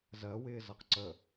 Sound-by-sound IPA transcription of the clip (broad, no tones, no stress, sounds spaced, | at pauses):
z ɜ w ɪː z ʌ q ǀ ə